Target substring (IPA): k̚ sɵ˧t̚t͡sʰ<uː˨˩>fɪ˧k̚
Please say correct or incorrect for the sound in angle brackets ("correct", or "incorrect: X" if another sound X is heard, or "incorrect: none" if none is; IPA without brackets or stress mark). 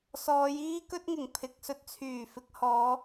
incorrect: yː˨˩